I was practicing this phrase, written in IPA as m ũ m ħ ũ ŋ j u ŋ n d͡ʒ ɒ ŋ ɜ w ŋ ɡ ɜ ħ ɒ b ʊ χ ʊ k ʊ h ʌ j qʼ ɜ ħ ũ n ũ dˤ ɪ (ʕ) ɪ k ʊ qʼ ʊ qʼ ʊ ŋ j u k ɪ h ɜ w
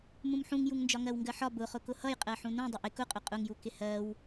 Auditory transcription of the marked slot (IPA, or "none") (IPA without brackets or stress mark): ʔ